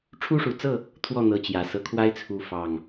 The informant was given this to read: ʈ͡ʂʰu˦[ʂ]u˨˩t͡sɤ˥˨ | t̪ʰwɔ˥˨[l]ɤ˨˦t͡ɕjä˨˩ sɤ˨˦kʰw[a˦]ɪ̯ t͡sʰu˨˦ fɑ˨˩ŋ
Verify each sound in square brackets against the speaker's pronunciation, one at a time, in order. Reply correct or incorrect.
correct, incorrect: n̪, correct

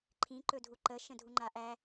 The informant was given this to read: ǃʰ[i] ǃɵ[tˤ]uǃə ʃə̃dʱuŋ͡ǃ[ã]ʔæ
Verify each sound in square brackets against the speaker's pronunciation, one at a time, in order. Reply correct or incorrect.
incorrect: ĩ, incorrect: dʱ, incorrect: a

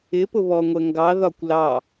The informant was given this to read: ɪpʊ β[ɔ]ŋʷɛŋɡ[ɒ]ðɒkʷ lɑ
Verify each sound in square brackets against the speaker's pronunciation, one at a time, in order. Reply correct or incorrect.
correct, incorrect: ɑ

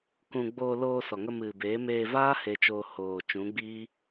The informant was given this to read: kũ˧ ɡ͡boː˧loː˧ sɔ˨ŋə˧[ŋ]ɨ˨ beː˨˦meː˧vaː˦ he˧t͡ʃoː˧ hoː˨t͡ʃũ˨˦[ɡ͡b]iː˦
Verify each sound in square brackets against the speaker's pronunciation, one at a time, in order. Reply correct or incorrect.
incorrect: m, correct

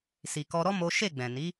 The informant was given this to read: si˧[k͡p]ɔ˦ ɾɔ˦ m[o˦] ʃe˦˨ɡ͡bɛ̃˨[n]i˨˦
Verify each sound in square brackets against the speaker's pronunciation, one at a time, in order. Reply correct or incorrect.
incorrect: k, correct, correct

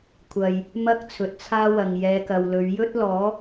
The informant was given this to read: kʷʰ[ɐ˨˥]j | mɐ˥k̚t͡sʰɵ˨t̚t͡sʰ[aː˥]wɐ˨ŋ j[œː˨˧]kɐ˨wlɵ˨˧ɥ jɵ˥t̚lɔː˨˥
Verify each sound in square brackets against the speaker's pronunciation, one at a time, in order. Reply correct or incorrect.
incorrect: ɐ˨, correct, incorrect: ɛː˨˧

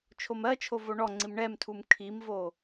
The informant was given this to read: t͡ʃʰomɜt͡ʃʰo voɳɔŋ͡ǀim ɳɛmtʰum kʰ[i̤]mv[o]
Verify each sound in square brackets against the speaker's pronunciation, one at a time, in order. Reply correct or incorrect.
incorrect: i, correct

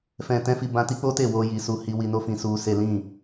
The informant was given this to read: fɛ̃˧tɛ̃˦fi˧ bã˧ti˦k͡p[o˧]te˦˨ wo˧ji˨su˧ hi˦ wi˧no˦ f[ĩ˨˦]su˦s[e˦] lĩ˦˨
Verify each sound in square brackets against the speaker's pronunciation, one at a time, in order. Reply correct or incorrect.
incorrect: o˦, incorrect: ĩ˧, correct

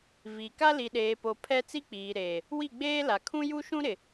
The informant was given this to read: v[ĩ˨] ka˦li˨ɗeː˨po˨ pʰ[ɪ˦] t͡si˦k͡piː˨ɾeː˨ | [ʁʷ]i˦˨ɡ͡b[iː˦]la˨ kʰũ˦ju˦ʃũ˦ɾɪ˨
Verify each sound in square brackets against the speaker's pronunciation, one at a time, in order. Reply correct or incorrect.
incorrect: i˨, incorrect: ɛ˦, incorrect: w, incorrect: eː˦

